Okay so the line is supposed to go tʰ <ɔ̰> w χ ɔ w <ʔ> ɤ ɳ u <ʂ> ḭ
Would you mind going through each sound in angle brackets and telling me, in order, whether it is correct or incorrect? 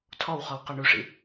incorrect, incorrect, correct

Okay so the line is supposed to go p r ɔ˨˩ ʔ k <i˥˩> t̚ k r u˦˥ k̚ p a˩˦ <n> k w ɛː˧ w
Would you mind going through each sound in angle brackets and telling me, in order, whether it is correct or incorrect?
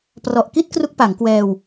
correct, incorrect

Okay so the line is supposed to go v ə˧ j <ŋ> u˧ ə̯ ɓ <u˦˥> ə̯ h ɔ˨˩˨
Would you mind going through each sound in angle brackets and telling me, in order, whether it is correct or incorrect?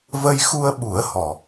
incorrect, incorrect

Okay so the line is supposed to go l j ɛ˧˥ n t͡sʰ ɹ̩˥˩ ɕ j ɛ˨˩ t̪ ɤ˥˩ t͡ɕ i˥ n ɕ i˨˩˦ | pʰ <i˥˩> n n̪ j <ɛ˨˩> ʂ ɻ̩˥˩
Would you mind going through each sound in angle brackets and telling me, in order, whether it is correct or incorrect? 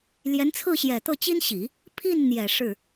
correct, correct

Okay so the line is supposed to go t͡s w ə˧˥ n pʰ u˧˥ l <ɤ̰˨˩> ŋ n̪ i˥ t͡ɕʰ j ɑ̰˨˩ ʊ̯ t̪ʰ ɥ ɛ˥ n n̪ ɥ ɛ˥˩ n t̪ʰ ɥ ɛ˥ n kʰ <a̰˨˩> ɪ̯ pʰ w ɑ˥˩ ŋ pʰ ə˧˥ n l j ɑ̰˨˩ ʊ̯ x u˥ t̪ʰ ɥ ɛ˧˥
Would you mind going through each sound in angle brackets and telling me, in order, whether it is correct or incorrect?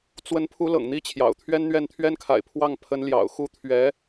correct, correct

